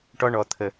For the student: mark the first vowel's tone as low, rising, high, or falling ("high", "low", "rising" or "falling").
high